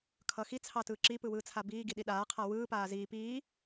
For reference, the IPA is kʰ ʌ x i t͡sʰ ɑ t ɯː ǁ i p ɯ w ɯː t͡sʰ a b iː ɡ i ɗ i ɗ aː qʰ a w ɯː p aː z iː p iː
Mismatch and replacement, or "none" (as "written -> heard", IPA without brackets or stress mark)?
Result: none